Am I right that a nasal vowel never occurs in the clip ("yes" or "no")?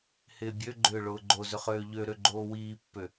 yes